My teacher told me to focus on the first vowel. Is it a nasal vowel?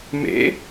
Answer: no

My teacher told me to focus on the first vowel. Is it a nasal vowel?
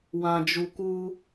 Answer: yes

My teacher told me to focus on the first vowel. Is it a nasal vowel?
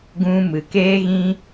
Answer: yes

